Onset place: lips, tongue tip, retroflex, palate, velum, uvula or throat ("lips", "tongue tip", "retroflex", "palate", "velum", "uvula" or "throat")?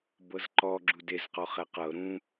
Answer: lips